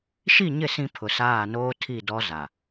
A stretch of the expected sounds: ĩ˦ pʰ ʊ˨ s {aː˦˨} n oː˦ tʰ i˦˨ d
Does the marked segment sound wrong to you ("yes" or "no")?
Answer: no